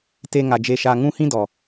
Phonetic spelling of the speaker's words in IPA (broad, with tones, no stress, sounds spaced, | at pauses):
t e˦ ŋ a˧ d͡ʒ e˧ ʃ aː˧ ŋ ũ˦ h ĩ˦ d ɔ˨